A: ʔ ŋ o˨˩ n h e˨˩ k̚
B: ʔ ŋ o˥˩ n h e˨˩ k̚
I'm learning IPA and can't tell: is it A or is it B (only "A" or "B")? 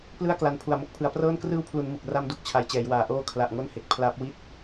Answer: B